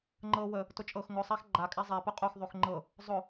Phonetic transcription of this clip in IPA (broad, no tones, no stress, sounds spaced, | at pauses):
ŋ͡ǃ ɤ w ə | t ʊ t͡ʃʼ ɤ x ŋ ʊ sˤ æ x ɡ͡ǃ a kʼ æ zˤ æ p ʊ qʼ o x ðˤ o x ŋ͡ǃ ɤ | zˤ ʊ